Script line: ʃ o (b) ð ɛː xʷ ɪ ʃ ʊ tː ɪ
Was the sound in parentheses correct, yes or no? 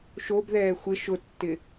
yes